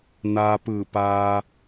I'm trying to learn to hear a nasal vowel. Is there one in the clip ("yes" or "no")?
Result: no